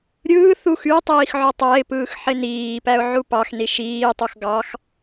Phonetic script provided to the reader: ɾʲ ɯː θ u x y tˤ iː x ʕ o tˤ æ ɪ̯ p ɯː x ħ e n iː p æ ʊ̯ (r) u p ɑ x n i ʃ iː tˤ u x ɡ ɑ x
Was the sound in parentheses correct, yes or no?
no